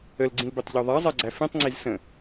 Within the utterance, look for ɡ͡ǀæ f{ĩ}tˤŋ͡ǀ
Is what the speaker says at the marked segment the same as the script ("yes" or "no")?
yes